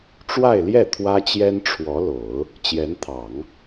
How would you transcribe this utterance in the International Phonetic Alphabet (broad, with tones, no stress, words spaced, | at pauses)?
ʈ͡ʂwa˥˧ɪ̯ljɛ˥˩ t̪ʰwä˥t͡ɕjɛ˥nʈ͡ʂʰwɔ˧˥lo˨˩˦ʊ̯ | t͡ɕjɛ˧˥nt̪ʰɑ˨˩˦ŋ